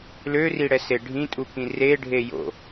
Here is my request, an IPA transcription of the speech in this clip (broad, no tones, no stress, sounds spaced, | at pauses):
l ø r i ɽ ɛ s e ɖʱ ĩ tʼ u k ĩ r e ɖʱ e j o̰